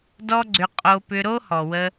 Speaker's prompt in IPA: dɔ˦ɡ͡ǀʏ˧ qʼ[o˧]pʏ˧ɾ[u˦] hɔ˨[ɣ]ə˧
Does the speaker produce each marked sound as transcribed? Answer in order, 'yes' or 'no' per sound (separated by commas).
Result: yes, no, no